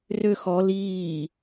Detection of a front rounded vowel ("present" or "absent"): present